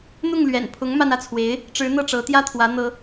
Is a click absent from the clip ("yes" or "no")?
yes